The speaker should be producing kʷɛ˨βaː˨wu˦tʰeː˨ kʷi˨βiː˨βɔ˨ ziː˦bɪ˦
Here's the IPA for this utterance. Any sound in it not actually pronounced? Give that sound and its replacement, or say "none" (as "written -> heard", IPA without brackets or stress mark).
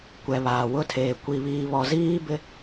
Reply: u˦ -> ʊ˦